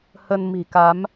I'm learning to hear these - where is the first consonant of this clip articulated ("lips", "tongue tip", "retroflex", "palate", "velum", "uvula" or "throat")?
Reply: throat